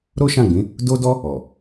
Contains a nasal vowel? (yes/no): yes